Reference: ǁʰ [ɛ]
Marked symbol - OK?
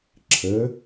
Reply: no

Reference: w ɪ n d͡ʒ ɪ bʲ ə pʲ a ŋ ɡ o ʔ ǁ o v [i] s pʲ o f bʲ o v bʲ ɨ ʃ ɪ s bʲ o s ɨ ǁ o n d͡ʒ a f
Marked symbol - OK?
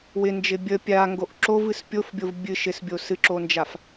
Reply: no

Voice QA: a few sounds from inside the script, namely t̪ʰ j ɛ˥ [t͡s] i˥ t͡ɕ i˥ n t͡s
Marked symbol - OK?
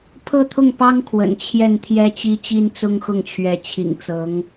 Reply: no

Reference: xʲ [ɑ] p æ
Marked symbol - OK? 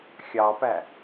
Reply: yes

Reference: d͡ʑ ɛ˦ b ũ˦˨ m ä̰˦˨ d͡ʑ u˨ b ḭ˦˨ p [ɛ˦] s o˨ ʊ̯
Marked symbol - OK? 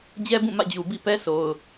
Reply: yes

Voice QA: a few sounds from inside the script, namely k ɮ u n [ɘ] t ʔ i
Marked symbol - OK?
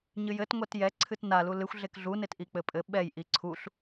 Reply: no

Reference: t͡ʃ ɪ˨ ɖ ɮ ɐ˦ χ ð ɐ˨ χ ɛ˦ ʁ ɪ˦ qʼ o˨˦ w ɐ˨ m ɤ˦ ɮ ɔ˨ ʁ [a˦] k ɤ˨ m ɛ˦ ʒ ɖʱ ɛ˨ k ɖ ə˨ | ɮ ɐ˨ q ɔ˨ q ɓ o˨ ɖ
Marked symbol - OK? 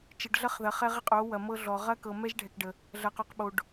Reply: no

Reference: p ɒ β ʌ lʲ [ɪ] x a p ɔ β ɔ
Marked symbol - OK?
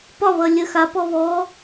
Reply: no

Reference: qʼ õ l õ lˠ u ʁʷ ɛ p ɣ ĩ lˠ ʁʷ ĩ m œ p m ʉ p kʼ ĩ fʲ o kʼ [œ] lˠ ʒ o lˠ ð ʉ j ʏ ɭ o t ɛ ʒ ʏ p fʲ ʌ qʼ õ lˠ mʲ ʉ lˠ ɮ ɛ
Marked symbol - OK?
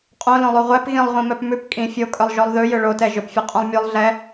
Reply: yes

